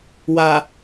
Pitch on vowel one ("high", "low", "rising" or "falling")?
low